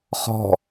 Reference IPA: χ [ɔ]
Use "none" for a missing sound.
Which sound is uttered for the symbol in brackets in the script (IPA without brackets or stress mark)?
ɔ̤